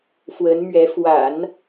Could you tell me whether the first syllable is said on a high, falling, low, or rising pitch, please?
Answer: rising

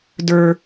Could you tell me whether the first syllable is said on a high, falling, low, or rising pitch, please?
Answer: high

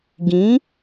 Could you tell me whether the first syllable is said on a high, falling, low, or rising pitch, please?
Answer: rising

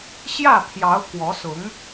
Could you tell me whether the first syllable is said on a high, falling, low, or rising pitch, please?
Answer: falling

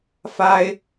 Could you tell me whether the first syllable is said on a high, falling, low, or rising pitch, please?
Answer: high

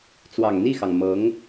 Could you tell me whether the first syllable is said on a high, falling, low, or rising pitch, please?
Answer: low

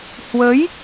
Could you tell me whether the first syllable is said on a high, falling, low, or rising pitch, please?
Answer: rising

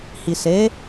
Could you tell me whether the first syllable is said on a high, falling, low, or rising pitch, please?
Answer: low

